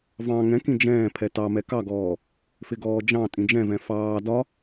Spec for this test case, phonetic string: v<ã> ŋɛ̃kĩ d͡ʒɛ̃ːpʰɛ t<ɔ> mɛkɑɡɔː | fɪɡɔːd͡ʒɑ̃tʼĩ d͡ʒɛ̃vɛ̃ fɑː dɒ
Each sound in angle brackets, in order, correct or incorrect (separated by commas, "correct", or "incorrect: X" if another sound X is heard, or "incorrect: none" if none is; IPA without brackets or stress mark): incorrect: ɑ̃, incorrect: ɑ